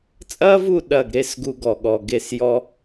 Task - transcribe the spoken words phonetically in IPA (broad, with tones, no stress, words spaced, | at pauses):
t͡sʼɐ˦vu˦˨ ɗɐ˦˨ɡɾe˦sɡu˧ ɡɔ˨ ɠɔ˨ɡe˦˨sjɔ˦